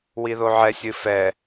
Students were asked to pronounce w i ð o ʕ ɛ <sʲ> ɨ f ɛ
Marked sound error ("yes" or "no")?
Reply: no